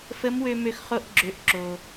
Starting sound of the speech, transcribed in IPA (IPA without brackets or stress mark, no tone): f